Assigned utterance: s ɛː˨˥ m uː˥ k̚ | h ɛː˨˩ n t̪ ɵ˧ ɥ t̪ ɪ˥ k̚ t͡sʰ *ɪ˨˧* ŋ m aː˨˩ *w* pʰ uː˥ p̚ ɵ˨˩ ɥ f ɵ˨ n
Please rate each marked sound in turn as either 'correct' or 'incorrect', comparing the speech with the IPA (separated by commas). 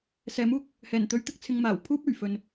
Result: incorrect, correct